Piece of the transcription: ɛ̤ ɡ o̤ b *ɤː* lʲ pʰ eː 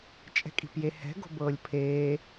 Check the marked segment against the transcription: correct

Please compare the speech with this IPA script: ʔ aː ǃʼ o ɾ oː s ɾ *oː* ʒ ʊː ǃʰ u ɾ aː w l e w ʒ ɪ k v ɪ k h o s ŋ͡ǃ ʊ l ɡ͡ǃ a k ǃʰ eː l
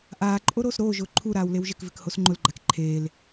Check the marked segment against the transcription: correct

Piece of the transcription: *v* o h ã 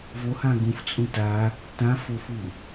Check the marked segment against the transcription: correct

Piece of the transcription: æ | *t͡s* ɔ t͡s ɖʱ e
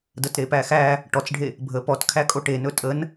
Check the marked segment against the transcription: incorrect: ʈ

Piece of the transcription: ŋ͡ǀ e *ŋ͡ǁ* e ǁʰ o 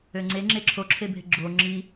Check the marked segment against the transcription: correct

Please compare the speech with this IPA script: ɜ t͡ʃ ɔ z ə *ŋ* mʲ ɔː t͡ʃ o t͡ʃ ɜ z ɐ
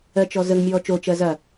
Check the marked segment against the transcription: correct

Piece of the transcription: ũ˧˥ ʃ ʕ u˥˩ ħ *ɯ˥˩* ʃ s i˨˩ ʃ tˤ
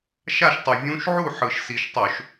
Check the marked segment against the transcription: incorrect: ɯ˨˩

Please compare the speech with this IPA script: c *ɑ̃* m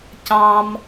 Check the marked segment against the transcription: correct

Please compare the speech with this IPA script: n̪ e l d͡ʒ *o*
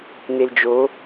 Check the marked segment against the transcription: correct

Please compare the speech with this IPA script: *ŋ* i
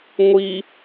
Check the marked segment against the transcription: incorrect: ŋʷ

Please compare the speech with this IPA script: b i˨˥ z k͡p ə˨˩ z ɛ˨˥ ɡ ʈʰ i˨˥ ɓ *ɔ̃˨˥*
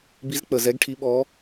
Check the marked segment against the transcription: incorrect: ɔ˨˥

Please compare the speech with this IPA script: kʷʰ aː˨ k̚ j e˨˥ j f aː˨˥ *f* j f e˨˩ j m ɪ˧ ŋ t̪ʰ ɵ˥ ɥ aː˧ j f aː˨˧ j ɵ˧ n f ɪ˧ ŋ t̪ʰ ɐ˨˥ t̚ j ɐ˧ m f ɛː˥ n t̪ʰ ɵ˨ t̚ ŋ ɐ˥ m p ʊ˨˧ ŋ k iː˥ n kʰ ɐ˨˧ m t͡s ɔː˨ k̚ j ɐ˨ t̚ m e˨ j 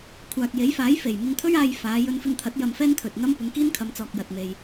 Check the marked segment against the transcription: incorrect: none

